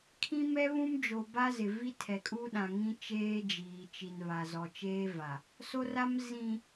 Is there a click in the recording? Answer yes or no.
no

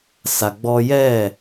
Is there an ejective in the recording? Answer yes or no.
no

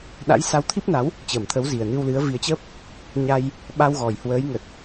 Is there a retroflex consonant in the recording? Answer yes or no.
no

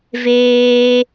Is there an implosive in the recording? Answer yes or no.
no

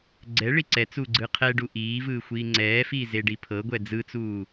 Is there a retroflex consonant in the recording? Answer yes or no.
yes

